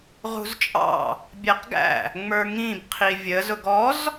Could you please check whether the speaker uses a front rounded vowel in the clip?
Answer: no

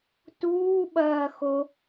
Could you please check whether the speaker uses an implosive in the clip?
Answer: yes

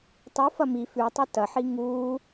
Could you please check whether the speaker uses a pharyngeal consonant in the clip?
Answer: yes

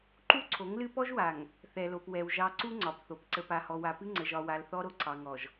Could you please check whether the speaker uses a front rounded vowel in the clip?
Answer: no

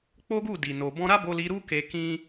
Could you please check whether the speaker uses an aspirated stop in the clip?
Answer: no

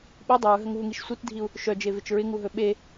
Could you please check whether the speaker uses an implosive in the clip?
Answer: yes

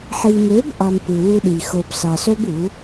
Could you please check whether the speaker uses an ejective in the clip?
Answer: no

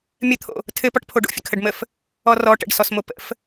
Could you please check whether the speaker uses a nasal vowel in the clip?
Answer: no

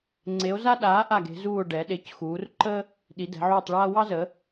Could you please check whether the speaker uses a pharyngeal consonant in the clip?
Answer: yes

